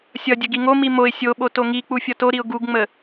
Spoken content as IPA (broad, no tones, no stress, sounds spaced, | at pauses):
sʲ ʌ dʲ ə ɡ i ŋ o m i m o ɪ̯ sʲ o ɓ o t o ŋ i k͡p u fʲ ʌ t o ɾ i ʊ̯ ɡ u ɡ ŋ͡m ə